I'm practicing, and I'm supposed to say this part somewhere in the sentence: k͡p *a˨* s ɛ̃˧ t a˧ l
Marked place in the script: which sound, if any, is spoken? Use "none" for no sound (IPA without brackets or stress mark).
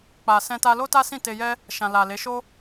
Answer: a˨